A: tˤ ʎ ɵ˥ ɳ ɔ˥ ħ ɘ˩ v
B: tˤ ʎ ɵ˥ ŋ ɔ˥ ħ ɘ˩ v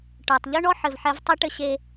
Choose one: A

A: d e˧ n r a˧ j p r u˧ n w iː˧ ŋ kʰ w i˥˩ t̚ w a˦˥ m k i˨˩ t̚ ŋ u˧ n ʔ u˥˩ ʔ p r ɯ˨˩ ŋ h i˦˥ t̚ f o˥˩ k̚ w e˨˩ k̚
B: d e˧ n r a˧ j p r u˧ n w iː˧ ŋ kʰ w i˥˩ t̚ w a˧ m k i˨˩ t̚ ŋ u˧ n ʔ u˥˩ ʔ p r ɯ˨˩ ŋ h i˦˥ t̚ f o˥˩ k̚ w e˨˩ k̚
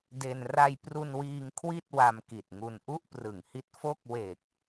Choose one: B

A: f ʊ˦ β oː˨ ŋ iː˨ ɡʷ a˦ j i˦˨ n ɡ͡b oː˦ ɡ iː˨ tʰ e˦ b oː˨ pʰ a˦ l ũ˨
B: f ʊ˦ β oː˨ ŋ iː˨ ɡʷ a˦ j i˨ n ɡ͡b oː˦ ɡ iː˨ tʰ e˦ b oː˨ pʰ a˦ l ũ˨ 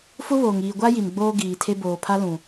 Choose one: B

